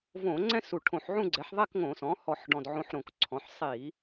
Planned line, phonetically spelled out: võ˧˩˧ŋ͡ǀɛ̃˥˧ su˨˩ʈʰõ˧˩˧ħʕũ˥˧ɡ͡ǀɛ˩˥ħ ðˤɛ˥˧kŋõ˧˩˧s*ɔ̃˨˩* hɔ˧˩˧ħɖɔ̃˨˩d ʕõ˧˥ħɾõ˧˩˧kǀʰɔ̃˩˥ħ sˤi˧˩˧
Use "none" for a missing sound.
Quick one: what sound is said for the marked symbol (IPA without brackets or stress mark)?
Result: ɔ̃˩˥